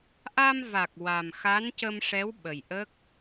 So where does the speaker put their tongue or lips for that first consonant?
throat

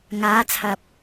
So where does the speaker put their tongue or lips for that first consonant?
velum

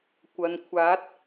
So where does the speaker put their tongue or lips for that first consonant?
velum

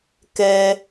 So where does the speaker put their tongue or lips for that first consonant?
velum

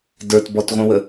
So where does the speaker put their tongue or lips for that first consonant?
tongue tip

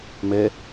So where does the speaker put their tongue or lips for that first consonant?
lips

